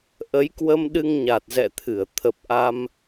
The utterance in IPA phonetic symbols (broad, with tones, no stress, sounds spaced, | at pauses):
ʔ ə˨˦ j k w ə˧ m ɗ ɨ˧ ŋ ɲ a˨˩ t̚ z ɛ̰˧˨ t̪ʰ ɨ˧˩ ə̯ t̪ʰ ə˨˩ p̚ ʔ a˧ m